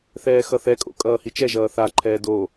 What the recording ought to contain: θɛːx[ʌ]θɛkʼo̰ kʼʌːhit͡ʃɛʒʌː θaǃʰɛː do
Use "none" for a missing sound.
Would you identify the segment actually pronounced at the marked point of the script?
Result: ʌ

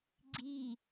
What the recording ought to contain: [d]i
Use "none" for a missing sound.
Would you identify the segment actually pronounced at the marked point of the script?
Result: ɡ͡ǀ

